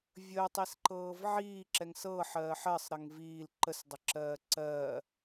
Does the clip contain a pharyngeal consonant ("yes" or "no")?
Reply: yes